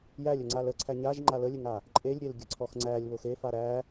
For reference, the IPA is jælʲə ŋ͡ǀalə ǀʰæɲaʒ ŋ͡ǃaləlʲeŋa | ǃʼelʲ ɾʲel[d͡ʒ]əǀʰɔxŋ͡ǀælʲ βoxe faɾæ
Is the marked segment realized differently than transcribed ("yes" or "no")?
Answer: yes